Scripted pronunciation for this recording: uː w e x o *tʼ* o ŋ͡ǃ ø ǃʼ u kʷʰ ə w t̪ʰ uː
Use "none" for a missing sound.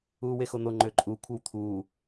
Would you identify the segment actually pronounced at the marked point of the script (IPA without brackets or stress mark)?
n̪